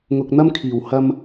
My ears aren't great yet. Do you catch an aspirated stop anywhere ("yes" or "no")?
yes